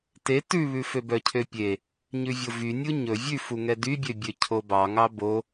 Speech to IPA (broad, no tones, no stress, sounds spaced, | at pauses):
t e t ʉ β ʉ f ø b œ cʰ ø pʲ e | ɲ ʉ vʲ o v y nʲ u ɲ ɵ vʲ ʉ f u ŋ ɛ d y bʲ ø bʲ ø cʰ o b ɑ ŋ ɑ b o